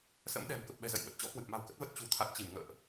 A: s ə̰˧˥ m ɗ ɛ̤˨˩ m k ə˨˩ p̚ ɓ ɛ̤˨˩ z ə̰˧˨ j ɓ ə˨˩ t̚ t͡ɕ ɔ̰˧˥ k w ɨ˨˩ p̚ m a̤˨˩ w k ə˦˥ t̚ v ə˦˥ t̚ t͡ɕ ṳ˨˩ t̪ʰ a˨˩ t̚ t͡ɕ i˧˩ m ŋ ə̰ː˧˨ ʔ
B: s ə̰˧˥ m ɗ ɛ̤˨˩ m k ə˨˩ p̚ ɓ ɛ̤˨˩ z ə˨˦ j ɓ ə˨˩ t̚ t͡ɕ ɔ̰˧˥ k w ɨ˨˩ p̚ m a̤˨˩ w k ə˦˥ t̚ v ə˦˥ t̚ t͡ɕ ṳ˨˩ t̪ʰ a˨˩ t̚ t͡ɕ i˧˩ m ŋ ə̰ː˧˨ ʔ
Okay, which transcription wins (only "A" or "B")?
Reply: A